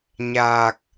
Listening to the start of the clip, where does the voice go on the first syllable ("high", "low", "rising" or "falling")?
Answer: low